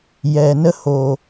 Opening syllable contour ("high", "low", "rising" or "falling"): low